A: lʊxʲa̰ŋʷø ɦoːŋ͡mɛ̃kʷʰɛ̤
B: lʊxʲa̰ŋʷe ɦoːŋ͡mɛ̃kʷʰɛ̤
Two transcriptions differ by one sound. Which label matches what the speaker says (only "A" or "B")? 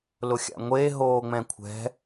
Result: B